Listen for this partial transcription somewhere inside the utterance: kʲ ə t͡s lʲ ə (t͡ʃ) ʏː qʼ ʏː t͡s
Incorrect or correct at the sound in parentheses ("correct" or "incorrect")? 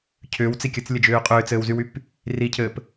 incorrect